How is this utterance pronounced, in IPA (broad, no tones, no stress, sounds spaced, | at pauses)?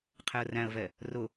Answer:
qʰ ɛ ə̯ r æ̃ ə̯ v ɛ | r ʊ